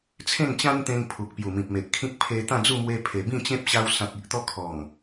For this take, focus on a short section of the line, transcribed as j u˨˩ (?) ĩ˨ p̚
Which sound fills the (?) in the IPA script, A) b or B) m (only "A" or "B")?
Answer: B